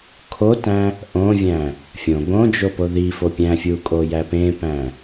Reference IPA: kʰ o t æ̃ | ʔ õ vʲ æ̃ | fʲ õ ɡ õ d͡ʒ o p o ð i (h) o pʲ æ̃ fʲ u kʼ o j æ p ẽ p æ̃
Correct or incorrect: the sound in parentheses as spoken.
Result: incorrect: f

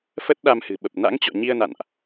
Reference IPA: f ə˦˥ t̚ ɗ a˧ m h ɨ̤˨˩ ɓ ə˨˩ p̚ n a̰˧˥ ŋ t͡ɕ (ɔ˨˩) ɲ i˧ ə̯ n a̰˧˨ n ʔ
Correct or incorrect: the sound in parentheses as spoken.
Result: incorrect: ɔ̰˧˨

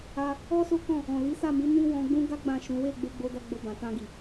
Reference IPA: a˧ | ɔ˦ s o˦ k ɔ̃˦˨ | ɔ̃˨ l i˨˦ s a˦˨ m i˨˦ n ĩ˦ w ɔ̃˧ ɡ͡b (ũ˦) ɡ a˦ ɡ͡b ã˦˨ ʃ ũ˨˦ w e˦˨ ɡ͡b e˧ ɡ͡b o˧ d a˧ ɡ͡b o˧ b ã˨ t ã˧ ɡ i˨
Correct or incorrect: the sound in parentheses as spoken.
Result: correct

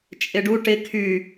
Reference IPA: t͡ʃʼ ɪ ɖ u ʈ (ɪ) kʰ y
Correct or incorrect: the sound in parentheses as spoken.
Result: correct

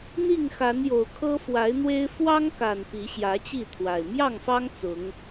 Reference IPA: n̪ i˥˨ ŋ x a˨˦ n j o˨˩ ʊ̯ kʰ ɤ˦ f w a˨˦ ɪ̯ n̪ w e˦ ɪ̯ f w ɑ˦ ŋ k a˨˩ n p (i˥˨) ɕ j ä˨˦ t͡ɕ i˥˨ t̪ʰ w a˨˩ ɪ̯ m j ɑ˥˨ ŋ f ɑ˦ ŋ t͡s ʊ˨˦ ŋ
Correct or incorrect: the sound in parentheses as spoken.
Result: incorrect: i˨˦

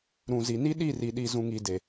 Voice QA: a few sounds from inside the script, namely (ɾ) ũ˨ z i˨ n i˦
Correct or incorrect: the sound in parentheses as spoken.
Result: correct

